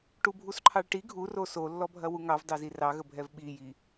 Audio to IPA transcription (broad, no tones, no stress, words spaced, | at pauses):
ʈubʱusǃʰɑɭʈi ɡʱuro solːɔbʱɐ wuŋɑvdɑ zirɑ ɣəbʱɛvɓiji